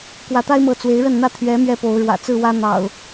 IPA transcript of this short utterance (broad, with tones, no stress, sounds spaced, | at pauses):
k w ä˨˦ t̪ a˦ ɪ̯ m ɤ˨˦ t͡s w e˨˦ ɪ̯ ɻ ə˥˨ n n̪ ä˥˨ t̪ʰ ɥ ɛ˨˦ m ɥ ɛ˦ p o˨˦ ʊ̯ ɻ w ä̰˨˩ t͡s ɹ̩˥˨ w ä˦ n̪ ɑ̰˨˩ ʊ̯